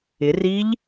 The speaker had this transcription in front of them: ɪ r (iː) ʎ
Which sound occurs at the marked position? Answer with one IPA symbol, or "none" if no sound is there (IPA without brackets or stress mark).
iː